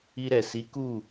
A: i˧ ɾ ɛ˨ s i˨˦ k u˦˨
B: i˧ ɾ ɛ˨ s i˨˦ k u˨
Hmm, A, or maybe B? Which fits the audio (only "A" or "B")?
A